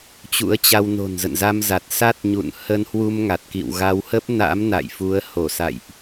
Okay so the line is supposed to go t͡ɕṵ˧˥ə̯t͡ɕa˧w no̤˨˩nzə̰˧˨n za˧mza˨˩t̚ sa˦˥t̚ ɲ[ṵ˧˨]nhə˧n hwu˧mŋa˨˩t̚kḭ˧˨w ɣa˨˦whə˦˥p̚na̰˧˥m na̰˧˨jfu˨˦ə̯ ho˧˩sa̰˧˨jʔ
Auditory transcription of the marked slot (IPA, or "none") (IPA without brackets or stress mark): ṵ˧˨